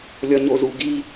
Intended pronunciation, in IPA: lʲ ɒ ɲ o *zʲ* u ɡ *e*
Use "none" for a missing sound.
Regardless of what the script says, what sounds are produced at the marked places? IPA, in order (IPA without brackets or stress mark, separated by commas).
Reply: z, i